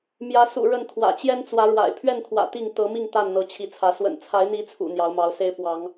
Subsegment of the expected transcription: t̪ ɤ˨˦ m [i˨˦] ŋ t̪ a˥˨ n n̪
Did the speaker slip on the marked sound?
yes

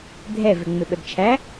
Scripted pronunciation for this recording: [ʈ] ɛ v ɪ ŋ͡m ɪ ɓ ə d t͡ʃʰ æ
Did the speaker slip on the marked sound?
yes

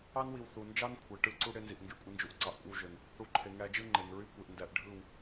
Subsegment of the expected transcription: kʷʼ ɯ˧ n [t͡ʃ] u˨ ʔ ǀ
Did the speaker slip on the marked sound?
yes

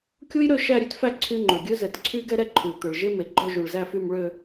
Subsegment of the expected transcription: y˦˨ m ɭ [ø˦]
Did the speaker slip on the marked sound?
yes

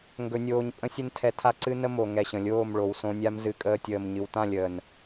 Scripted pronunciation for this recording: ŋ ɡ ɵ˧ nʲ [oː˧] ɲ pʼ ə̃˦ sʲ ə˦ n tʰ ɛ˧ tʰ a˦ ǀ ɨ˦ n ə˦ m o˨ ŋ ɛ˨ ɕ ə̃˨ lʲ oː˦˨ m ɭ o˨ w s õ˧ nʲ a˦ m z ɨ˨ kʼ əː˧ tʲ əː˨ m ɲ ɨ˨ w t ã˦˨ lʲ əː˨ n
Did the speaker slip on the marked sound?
no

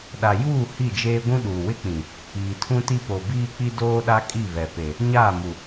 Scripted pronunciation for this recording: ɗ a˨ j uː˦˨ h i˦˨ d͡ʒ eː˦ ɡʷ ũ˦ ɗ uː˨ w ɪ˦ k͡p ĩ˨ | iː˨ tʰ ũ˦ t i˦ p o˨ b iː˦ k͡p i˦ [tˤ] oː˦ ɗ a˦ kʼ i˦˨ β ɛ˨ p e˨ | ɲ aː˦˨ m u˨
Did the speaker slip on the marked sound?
yes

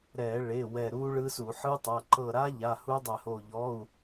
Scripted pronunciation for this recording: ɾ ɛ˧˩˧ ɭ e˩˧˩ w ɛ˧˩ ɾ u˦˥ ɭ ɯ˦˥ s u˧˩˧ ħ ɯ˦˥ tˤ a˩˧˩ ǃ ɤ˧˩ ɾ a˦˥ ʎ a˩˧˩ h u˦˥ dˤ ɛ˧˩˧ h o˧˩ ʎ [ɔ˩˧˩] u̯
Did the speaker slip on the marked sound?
no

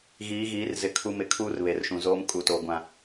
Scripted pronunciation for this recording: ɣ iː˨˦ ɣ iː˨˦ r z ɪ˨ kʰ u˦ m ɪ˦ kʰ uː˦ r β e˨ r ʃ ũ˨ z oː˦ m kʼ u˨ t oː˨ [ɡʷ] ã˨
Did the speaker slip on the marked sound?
no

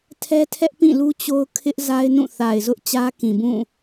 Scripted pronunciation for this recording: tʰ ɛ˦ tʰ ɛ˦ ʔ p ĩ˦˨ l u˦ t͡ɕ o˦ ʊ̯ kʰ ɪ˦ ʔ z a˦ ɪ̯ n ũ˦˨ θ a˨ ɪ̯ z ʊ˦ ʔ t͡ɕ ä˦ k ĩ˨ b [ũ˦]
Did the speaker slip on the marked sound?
yes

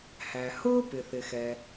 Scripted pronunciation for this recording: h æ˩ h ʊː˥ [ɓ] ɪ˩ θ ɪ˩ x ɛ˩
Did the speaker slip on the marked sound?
yes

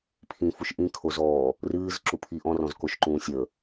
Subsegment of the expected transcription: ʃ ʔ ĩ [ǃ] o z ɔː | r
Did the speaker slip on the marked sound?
yes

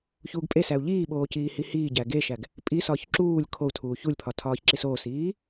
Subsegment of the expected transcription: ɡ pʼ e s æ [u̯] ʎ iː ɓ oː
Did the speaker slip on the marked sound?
no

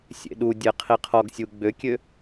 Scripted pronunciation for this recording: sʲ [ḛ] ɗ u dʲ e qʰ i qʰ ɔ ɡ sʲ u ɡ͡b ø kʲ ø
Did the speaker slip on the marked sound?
no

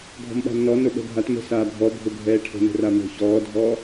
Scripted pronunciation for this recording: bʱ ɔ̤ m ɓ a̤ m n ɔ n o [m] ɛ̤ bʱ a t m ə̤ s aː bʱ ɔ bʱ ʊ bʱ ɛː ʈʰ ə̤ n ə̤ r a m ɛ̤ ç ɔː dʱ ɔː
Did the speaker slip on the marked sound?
yes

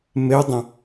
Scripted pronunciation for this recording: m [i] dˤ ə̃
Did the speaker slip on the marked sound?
yes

